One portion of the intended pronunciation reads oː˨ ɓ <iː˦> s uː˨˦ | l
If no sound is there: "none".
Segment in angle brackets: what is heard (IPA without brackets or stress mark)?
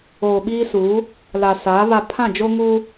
iː˦